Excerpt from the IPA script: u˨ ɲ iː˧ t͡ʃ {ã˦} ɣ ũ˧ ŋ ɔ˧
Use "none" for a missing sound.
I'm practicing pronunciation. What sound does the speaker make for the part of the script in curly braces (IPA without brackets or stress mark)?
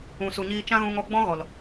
ã˦